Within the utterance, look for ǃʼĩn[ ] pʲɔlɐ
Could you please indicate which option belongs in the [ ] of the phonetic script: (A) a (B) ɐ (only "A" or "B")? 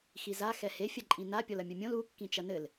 A